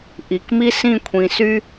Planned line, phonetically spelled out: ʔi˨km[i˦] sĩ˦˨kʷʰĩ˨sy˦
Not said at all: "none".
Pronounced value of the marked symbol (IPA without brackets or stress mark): i˦